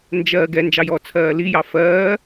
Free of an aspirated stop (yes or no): no